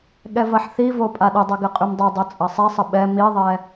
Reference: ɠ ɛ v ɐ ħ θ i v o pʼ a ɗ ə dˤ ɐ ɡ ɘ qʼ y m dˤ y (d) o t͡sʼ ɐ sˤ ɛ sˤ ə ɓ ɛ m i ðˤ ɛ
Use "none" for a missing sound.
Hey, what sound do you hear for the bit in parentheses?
dˤ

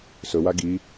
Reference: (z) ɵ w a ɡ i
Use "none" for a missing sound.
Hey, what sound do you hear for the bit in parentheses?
s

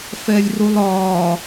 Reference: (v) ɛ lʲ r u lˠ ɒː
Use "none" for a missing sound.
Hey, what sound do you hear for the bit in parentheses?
f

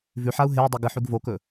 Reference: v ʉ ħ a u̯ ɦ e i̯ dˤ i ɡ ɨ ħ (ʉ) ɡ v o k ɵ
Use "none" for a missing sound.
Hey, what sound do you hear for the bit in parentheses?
ʉ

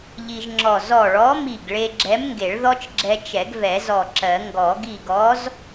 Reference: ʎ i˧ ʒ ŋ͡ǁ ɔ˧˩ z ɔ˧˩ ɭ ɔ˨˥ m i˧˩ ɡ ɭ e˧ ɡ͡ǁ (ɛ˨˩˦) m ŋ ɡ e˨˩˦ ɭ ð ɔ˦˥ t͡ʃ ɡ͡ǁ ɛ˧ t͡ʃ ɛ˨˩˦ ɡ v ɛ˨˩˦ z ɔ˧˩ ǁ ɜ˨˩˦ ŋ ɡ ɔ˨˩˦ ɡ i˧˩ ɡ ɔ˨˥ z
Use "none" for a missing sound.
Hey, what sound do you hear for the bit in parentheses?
ɛ˨˥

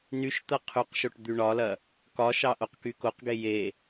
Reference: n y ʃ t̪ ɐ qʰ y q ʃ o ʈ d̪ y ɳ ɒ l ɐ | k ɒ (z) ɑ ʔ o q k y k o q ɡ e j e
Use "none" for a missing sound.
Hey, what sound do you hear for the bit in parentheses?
ʃ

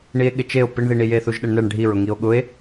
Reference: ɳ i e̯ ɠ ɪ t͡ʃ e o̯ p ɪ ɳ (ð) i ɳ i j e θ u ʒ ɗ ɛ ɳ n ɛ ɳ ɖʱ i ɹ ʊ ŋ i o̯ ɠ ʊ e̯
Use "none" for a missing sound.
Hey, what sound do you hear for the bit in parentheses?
ð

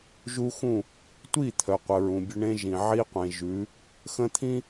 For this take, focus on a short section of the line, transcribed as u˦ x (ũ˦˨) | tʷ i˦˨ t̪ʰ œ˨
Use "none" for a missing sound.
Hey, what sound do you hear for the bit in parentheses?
ũ˦˨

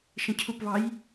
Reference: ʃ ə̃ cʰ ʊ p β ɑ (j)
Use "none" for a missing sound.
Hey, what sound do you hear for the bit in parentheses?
j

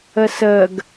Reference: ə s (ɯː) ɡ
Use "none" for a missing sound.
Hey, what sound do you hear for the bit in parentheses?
əː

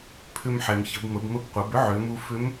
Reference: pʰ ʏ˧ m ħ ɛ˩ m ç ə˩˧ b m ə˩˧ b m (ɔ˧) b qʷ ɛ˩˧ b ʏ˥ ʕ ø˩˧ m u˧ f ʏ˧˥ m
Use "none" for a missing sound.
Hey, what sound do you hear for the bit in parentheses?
ə˧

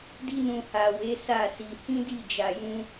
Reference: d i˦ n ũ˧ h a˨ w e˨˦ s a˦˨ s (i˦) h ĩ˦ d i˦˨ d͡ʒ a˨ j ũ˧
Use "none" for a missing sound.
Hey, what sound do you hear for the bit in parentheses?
i˧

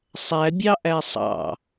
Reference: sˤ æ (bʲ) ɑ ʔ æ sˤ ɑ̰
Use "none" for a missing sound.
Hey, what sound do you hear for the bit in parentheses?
bʲ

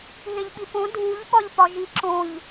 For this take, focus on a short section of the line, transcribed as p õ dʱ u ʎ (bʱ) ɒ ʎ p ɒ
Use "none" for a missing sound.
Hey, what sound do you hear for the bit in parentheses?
ɓ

